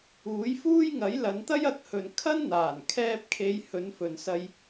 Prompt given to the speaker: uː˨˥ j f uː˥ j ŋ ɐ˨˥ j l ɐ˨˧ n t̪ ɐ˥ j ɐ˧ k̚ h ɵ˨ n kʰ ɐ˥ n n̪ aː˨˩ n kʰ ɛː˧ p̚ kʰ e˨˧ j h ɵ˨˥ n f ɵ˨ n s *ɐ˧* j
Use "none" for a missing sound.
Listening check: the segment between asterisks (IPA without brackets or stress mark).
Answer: ɐ˧